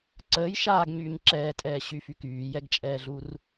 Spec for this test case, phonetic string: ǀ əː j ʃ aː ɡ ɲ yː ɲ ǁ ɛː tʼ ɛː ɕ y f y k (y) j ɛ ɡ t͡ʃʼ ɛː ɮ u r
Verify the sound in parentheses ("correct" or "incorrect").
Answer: incorrect